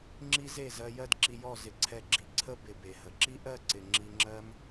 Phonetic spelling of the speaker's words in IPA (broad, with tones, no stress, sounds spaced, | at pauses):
ŋ͡ǁ i˦ z e˦˨ z ɜ˧ j ɜ˦ d ǁ i˧ j ɔ˦˨ z ɪ˧ ǀʰ ɛ˧ ɡ͡ǁ i˨ ǀʰ ə˦ b ɪ˨ b e˨ h ə˨ ǁ i˦ ʔ ɜ˦˨ ǀ ɪ˨ ŋ͡ǁ i˧ ŋ͡ǁ ɜ˦ m